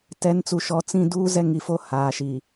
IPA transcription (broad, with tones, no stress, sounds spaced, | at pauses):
t ɛ˨˦ n t͡s u˨ ʃ ɔ˨ t͡s ĩ˦˨ d uː˦ z ɛ˦ ŋ i˨ f o˦˨ h aː˨ ʃ i˨